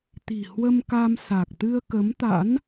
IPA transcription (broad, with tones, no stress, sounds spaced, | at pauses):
t̪ i̤˨˩ h w ə˧ m k a˧ m s a˨˩ k̚ t̪ ɨ˧ ə̯ k ə˨˦ m t̪ a̰˧˥ n